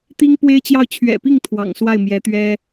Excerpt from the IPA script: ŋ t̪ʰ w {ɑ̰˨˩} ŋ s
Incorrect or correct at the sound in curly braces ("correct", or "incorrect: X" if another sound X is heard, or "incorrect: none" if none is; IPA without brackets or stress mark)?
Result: correct